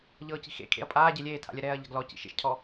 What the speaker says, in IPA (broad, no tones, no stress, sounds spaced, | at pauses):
ʎ ɤː c i̤ x ḛ kʰ ḛ ɐ̯ pʼ aː ɟ e lʲ eː tʰ a̰ lʲ ɛ ɾ ɛː ɐ̯ ʎ a̤ ɡ l ɔ c ḭ ʃ ḛ ʃ cʰ ɔ